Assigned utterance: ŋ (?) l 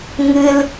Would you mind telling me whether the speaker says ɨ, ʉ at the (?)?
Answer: ɨ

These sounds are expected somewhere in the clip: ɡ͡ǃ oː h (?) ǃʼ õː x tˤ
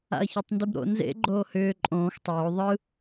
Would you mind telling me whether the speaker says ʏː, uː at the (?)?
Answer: ʏː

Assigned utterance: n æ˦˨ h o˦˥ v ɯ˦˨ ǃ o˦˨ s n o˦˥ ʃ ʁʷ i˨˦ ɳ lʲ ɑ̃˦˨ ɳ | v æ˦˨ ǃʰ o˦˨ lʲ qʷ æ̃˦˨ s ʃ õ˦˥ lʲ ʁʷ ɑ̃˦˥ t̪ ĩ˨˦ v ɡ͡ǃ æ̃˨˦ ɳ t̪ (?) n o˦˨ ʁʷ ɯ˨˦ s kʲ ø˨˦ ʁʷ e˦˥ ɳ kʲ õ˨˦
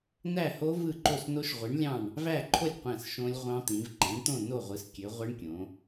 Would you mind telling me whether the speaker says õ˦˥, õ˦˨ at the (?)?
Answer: õ˦˨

